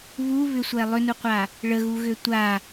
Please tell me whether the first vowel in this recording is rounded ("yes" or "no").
yes